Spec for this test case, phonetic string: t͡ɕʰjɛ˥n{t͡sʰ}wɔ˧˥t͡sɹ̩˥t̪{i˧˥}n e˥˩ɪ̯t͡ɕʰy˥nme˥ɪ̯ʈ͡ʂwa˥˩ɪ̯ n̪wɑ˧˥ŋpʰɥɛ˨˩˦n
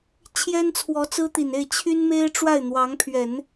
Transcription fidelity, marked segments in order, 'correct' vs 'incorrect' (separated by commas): correct, incorrect